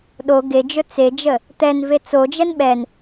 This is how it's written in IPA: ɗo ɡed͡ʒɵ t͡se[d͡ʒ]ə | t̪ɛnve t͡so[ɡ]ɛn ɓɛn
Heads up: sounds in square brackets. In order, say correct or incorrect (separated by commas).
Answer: correct, incorrect